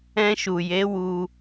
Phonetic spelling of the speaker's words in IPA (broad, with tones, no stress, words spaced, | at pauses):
ɛ̃˧ʃu˨je˨˦ wu˧